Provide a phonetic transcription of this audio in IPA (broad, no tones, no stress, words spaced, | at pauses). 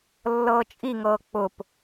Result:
lːɤːt͡ʃʼiŋɤː k͡pʊp